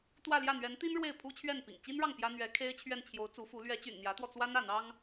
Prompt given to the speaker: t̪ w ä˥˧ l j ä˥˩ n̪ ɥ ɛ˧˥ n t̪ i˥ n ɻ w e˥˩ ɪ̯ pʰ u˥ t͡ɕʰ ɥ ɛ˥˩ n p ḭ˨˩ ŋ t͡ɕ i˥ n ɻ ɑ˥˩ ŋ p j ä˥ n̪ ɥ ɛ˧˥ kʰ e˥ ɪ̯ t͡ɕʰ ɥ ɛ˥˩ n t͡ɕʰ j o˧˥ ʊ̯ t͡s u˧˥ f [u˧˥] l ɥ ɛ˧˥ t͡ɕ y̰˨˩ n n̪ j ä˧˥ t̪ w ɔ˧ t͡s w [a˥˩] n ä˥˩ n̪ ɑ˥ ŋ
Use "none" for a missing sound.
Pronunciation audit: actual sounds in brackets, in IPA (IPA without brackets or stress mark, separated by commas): u˧˥, a˥